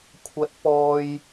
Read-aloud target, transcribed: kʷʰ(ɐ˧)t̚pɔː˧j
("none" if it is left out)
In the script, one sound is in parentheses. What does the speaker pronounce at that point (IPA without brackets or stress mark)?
ɐ˧